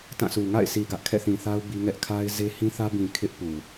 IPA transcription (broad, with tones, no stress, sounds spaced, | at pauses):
t ã˦˨ s u˨ ŋ a̰˦˨ ɪ̯ sʰ i˨ ɡ ä˦ ʔ kʰ ɛ̰˦˨ θ ĩ˨ θ a˦ ʊ̯ b i˦ ŋ ɛ˦ ʔ kʰ a˦ ɪ̯ z e˦ h ĩ˦ θ ä˦ b ĩ˨ kʰ ɪ˦ ʔ p u˨